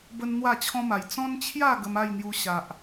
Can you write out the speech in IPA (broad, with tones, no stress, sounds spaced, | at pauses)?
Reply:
b ə˦ n n̪ w a˥˧ t͡ɕʰ ɔ̃˦ m a˨˩ j t͡s ɔ̃˦ n t͡ɕʰ j a˥˧ ɡ ə˧ m a˥˧ j n̪ j u˧ ɕ a˨ ʔ